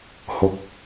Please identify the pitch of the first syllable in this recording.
low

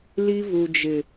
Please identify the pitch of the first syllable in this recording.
high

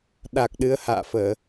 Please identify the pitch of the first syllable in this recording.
low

